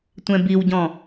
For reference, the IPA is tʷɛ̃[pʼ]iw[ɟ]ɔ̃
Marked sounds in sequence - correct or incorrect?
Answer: incorrect: b, correct

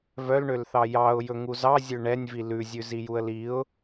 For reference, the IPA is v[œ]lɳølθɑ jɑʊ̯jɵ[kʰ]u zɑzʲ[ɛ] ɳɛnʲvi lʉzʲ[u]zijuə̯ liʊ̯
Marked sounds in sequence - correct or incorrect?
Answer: correct, incorrect: ŋ, incorrect: ø, incorrect: ʉ

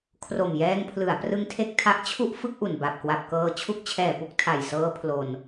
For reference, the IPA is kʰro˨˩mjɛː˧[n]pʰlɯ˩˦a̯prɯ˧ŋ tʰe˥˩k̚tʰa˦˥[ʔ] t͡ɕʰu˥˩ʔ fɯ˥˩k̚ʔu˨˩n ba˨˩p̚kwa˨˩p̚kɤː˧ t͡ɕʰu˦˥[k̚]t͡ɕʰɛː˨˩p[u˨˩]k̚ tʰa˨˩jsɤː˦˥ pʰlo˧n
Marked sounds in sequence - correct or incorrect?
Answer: incorrect: ŋ, correct, correct, incorrect: u˦˥

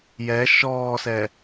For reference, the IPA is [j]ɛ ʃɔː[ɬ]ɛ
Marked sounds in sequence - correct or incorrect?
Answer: correct, incorrect: s

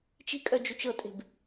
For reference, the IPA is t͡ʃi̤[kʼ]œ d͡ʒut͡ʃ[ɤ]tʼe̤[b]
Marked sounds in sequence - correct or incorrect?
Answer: correct, correct, correct

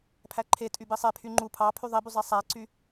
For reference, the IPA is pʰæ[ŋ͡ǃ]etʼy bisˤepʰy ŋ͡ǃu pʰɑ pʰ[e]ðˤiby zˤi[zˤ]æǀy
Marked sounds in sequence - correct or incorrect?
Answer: incorrect: ǃʰ, incorrect: y, incorrect: sˤ

